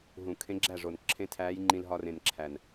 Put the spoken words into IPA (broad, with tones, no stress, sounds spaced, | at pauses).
ɦ ũ˨˩˦ kʰ ẽ˧˥ ɡ͡ǁ æ˥˩ ʐ o˨˩ n ǁʰ ẽ˧˥˧ tʰ æː˧˥ j ŋ͡ǃ ĩ˧ l ɦ ɒ˧ r ẽ˨˩ n ǁʰ æ˨˩ n